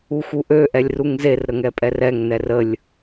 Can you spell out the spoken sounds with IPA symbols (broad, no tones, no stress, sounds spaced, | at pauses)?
u x u ʔ ø ʔ ɛ lʲ r u ŋ z e r ɾ ə ŋ ɛ pʼ ɛ r ɛ ŋ n ɛ r ə lʲ